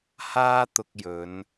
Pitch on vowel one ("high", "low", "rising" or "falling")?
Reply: high